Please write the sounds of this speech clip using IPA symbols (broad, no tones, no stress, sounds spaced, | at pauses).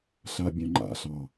ɬ a bʲ œ̃ ŋ͡ǃ a̰ ɬ ɑ